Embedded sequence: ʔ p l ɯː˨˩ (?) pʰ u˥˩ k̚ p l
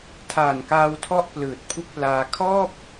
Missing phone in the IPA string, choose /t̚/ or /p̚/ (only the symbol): t̚